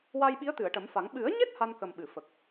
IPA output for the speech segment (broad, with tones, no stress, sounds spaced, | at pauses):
w a˧ j ɓ i˧˥ ə̯ t̪ ɨ˨˩˨ ə̯ ʈ ə˨˩˦ m f a˨˩˦ ŋ ɓ ɨ˨˩˦ ə̯ ɲ e˦˥ t̚ h a˧ n k ə˨˩ m ɓ ɨ˨˩˨ f ə˨˩ k̚